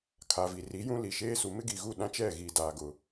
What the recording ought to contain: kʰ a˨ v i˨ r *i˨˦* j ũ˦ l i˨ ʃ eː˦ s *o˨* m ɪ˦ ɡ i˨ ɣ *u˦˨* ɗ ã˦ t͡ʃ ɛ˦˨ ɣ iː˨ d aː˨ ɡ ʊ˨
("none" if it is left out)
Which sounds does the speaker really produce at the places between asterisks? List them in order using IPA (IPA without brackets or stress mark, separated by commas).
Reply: i˨˦, u˨, u˦˨